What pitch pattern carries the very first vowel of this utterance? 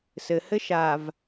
low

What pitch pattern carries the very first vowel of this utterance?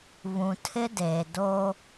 low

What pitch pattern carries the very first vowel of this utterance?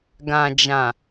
low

